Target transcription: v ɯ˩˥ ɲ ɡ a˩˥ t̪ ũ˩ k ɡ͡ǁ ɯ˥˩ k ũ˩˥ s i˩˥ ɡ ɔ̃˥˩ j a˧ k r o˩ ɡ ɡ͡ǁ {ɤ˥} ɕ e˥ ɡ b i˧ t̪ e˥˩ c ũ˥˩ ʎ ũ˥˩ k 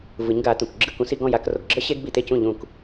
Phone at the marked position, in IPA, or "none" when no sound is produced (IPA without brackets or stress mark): ɤ˥